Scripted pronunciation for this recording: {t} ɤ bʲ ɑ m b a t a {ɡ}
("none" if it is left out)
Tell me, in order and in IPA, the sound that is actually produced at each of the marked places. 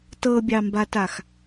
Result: t, x

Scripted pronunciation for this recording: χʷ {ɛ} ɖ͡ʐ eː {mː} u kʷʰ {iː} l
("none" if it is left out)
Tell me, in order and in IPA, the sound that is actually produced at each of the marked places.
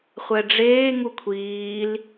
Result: ɛ, ŋ, iː

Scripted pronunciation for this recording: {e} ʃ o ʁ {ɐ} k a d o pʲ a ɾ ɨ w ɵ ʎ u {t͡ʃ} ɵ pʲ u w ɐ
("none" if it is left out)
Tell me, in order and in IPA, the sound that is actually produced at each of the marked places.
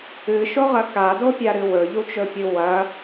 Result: ɨ, ɐ, t͡ʃ

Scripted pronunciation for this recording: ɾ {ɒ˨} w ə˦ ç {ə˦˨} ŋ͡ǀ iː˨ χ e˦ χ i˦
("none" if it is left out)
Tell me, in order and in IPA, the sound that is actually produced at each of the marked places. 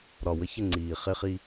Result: ɒ˨, ə˦˨

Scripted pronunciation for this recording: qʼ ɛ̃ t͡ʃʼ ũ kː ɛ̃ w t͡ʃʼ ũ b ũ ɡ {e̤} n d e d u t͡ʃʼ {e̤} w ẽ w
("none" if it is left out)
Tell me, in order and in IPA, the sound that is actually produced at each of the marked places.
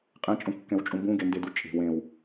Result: e, e̤

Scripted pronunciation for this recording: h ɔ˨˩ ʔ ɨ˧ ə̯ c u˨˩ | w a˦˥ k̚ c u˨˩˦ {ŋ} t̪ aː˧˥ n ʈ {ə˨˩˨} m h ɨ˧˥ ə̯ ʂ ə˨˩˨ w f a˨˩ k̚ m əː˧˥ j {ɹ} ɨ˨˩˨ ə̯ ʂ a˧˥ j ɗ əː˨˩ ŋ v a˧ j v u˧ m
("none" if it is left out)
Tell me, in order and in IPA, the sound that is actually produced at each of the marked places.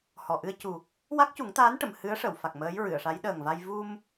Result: ŋ, ə˨˩˨, ɹ

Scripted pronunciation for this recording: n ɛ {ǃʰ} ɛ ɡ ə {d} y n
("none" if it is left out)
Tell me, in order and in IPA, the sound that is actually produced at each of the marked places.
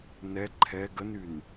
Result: ǃʰ, n

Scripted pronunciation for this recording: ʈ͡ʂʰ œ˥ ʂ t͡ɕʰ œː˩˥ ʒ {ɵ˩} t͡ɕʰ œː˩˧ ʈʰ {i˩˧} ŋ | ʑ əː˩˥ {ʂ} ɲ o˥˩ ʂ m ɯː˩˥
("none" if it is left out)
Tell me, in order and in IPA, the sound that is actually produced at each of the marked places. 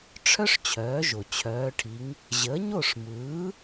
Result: o˩, i˩˧, none

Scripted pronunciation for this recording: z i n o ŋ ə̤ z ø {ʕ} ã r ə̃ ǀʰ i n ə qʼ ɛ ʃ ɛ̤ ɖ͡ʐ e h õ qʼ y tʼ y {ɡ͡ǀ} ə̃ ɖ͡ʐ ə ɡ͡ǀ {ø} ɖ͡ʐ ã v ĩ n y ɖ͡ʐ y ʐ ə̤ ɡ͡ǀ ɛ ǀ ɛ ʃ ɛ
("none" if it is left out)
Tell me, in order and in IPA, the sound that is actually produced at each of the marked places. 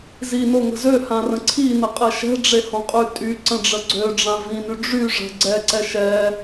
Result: h, ǀ, ø

